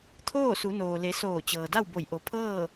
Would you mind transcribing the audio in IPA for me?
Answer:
t̪ʰ oː˥˨ s u˩˧ n oː˩ l e˩˧ s oː˧˩ t͡ɕ ɤː˩ d a˥˨ w b o˧˩ j ʔ o˩˧ pʰ ɤː˥˨

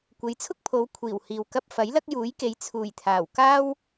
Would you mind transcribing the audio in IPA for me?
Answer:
kʷ e˨˧ j t͡sʰ ʊ˥ k̚ pʰ o˨˧ w kʷʰ iː˨˩ w h iː˨ w k ɐ˧ p̚ f ɐ˨˥ j l ɐ˥ k̚ j uː˨˥ j k e˨˧ j t͡sʰ uː˨˩ j t̪ʰ aː˨˩ w k aː˥ w

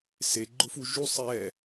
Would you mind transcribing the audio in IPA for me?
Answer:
s e ɡ͡ǃ ʊ f u ʒ u sˤ ɛ

